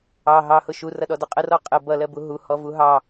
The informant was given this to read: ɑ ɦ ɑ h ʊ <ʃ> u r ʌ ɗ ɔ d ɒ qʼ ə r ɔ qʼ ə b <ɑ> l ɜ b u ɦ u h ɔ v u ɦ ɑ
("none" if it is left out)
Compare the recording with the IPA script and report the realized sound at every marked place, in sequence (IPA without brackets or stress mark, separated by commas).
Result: ʃ, ʌ